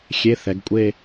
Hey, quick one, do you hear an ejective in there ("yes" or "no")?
yes